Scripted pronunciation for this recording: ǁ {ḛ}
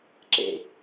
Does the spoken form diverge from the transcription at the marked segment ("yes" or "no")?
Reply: no